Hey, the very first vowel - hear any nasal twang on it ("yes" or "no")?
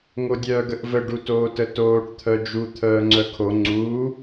no